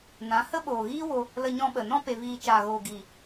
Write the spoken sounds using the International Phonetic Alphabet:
nã˨˦ hə˦ɓoː˨ɣiː˦ wo˧ | lə˧ɲɔ̃˧ɓə˨ nɔ̃˧pe˨viː˨ t͡ʃaː˨ɣoː˨ ɡiː˨

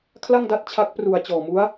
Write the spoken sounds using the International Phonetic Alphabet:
kʰla˥˩ŋda˦˥t̚ t͡ɕʰa˦˥k̚pru˨˩a̯t͡ɕɔː˨˩mu˦˥a̯

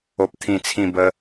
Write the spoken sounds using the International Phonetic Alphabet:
o˨p̚t̪ʰĩ˨˩ t͡sʰĩ˨˩ bə˧

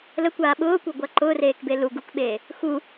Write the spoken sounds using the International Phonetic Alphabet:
ləkʷaː ɓʊːkʷeɡʷa ǃʊːreːkbe lu ɡukɓeː | xu

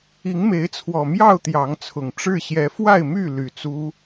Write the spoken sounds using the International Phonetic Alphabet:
i˨˦ŋme˨˦ɪ̯ t͡sʰwɔ˨˩mjɑ˥˨ʊ̯ t̪jɑ˨˦ŋt͡sʰʊ˨˩ŋ ʈ͡ʂɻ̩˥˨ɕjɛ˨˦ fwa˥˨ɪ̯my˥˨ly˨˩ t͡su˦

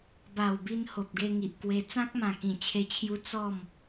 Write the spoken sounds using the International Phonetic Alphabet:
ba˨˩wbi˧n ho˨p̚ɡe˧ ŋi˨ʔkwe˧ t͡sã˦k̚mã˨˩kĩ˨˩ t͡ɕʰe˧t͡ɕʰju˧ t͡sɔ˥˧m

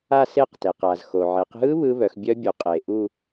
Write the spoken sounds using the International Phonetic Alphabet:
a˥˧se˥˧qte˩q a˩zxo˩ʕe˩˧qɦɯ˦˥ βɯ˦˥βœ˩˧xbʲœ˦˥ bʲu˩qʼe˩ʔu˥˧

